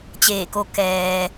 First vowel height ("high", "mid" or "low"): mid